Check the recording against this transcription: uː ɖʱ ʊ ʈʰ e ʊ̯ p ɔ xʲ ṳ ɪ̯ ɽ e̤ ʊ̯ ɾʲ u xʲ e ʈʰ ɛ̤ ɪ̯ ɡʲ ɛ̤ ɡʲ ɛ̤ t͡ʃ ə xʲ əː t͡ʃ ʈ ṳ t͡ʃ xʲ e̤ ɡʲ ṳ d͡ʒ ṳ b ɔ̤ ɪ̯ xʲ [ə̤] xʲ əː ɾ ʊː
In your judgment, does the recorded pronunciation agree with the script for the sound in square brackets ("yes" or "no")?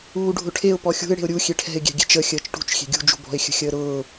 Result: yes